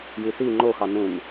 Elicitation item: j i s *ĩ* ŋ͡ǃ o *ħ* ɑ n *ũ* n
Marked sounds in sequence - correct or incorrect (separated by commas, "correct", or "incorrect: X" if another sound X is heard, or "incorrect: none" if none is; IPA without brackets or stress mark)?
incorrect: i, incorrect: x, correct